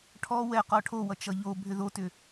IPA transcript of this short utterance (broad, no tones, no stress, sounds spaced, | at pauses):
ʈʰ ɔ w ɛ q ɔ ʈʰ o w ʌ t͡ʃ ʌ ʎ o bʱ ʏ ð o t ʏ